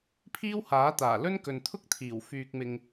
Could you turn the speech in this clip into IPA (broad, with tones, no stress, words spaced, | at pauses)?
pʰiː˥whaː˨˥t̪aː˨˩lɵ˥n kɵ˨nt̪ʰʊ˥k̚t̪ʰiː˨˩w fyː˧k̚mɪ˧ŋ